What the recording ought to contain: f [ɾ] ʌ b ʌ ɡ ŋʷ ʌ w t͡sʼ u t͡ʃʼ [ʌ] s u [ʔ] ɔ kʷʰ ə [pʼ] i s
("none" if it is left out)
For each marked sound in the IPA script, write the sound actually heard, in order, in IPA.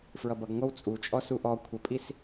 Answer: ɹ, ɔ, ʔ, pʼ

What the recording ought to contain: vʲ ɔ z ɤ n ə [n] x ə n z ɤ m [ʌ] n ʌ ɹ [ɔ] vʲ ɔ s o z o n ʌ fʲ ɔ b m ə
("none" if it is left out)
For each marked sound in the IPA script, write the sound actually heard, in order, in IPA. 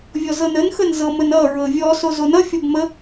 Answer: n, ə, ɤ

